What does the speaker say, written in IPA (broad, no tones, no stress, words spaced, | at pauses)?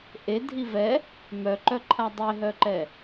ʔedʱi vɛ | mœǃœǃʰa dˤeɦœǃɛ